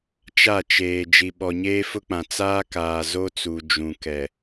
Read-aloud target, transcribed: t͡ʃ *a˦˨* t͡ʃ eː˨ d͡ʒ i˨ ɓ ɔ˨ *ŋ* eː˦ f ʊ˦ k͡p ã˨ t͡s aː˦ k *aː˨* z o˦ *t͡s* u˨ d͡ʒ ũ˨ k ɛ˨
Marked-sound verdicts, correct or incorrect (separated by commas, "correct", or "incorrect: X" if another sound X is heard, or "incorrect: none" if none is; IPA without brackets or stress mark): correct, incorrect: ɲ, correct, correct